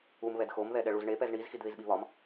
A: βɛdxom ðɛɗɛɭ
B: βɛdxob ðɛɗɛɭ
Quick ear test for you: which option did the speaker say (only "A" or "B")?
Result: A